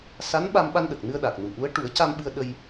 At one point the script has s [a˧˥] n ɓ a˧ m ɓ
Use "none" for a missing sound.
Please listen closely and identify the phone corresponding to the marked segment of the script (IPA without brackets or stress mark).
a˧˥